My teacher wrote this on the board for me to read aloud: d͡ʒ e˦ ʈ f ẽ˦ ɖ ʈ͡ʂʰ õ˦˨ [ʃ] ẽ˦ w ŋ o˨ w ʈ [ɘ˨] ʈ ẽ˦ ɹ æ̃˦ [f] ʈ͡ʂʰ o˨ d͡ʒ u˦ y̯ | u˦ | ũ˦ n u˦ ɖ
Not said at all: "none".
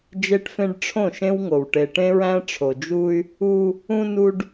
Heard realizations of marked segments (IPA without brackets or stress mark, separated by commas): ʃ, e˨, none